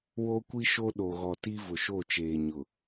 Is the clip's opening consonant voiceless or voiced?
voiced